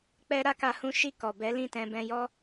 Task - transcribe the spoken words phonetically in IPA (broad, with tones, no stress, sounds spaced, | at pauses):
k͡p ɛ˦ ɾ a˦ k a˧ h ũ˦ ʃ i˦˨ k ɔ˨ b ɛ˨˦ l ĩ˦˨ t ɛ̃˧ b ɛ̃˧ j ɔ˦